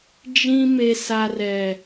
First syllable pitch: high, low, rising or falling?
high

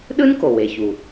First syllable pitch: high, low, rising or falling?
high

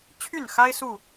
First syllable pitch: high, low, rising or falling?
falling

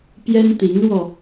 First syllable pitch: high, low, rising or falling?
high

